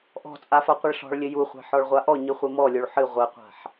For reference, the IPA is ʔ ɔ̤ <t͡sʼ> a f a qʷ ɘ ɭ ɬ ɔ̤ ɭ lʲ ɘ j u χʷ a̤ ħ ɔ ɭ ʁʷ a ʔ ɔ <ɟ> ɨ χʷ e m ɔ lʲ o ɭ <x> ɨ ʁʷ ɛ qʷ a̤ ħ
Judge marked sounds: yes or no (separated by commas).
yes, no, no